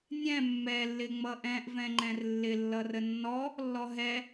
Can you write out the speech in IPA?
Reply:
nʲɛ̃ mːɛ lːɪŋ͡mʌʔɛ̃ʔ vɛ̃ŋ͡ǃɛ̃rlːɪ lːʌrənːɔ | lːɔɦɛ

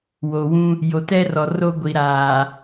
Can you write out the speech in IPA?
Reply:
wo˨wũ˦ | jo˨tɛ˦rɔ˨ ro˦ɡʷi˨ɾaː˨

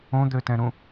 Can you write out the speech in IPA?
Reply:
õd̪øtɛ̃ɾũ

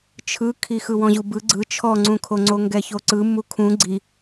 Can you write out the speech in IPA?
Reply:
t͡ʃʰɯkʰixɯ wɔ̃ʑubɯ ɡ͡ǀɯ t͡ʃʰɔŋ͡ǀũkʰo ŋ͡ǀoŋɡɛçoǀɯ mukʰũ ɡ͡ǀi

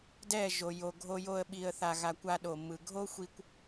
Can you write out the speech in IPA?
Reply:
dɛ˦˨ ʒo˨jo˨ɡʱo˧jo˧ə̯ ɓi˧ə̯θa˧ɣa˧kʷ a˧ɗo˨mːɯ˨ ɡʱo˦xʷi˧kʷ

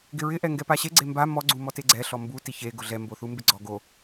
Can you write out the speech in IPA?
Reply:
ɡɪɹɪ ʔɛŋɡɛpaɕe ɡ͡ǀemba mɔ ɡ͡ǀumɔteɡ͡ǀɛ ɬɔmbu tiçe ɡʊɮɛ mboθumbɪɡ͡ǀɔ ɡo

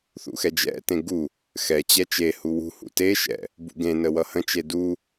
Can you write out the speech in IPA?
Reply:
θṵxɛd͡ʒɛ̰tẽ ɡu | xɛt͡ɕɛ t͡ʃehu wṳhṵ teʃɛ̰ | bṵɡẽnə wʌhə̃t͡ʃe du

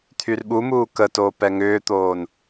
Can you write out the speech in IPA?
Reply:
t̪ʰyrɓumuː kətoː pɛŋʏːt̪oːn

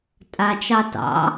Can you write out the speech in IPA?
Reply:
tʼa t͡ʃɑtɑ̰

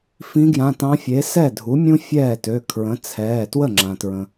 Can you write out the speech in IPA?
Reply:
fĩ˧˥ɡjã˩˧˩tɑ̃˧˥fʲe˩˥ sɛ˥˩dʱu˩˥mʲũ˥ fʲɛː˥˩tø˩˧˩ kʰɹə̃˩˥t͡sʰɛː˩˧˩ twə˥˩ŋ͡ǁã˩tɹə̃˩

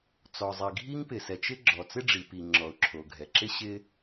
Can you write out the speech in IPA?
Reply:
t͡sɔ˩zˤi˩ɡʱi˥ŋ pɪ˩sɛ˩t͡ʃɪ˥ ɡ͡ǁɔ˩t͡sɪ˥ɖ͡ʐi˩ pi˩ ŋ͡ǁɔ˩ʊ̯ǁʰo˩ɡʱɛ˩ǁɪ˥ ɕɪ˥

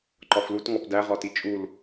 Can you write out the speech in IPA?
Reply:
ǃɒflut ŋɒpdæ ʁɒtit͡ʃʼul

